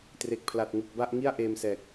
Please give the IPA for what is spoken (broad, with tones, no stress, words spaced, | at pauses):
tre˨˩k̚pʰla˨˩t̚ŋu˨˩k̚ba˥˩ʔ ŋi˥˩a̯ʔeː˧msɛː˨˩k̚